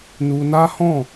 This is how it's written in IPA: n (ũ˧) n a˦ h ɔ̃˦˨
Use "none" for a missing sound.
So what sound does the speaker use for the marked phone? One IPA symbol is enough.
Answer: u˧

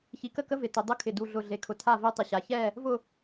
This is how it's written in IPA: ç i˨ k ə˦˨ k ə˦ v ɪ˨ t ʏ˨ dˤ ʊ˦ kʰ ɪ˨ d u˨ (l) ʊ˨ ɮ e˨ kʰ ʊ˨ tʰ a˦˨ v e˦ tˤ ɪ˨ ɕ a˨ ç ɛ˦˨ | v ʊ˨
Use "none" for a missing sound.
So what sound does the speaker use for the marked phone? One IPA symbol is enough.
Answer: ɮ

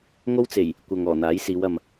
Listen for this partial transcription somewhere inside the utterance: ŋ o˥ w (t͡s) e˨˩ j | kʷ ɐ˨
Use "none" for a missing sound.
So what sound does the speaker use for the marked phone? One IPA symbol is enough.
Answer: t͡s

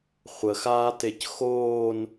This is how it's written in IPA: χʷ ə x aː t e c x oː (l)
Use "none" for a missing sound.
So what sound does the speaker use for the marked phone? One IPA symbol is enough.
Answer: n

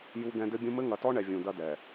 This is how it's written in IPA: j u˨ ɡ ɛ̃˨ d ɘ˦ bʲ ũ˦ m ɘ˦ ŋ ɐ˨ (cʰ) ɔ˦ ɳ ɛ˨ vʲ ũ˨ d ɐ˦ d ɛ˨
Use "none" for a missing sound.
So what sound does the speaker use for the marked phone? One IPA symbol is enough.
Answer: t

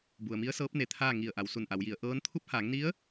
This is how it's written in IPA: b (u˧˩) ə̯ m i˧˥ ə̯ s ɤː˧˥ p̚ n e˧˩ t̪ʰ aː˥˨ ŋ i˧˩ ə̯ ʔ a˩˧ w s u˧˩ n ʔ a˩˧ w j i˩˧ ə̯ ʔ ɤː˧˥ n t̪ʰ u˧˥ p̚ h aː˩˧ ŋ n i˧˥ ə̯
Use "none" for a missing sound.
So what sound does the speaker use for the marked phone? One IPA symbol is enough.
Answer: u˩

